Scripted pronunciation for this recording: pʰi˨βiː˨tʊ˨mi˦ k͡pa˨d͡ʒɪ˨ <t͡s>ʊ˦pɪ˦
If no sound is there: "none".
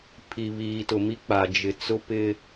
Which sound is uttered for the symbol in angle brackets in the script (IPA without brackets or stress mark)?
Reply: t͡s